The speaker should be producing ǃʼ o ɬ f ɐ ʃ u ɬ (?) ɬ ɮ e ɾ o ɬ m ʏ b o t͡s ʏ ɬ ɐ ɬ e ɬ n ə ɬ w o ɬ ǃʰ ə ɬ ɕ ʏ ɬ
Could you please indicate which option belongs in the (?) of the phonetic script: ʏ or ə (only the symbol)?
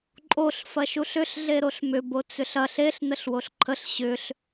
ʏ